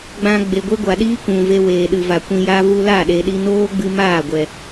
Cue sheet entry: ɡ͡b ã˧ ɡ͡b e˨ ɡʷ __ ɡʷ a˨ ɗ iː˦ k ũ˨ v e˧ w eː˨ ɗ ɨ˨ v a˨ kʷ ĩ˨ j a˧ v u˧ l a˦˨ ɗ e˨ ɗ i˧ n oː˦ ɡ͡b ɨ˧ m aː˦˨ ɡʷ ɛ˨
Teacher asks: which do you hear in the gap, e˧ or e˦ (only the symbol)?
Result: e˦